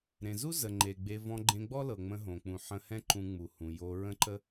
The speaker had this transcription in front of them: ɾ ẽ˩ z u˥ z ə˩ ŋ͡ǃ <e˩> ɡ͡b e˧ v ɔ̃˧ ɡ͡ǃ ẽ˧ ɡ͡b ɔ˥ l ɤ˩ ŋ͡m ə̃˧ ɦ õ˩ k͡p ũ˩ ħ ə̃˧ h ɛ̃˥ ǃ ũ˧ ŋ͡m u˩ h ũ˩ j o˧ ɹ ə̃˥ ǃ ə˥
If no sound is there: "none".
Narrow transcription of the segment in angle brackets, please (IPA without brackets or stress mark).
e˩